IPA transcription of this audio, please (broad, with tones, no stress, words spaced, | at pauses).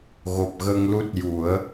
ɣo˨˩p̚ɣə˧ŋ lu˦˥t̚ju˨˩˦ə̯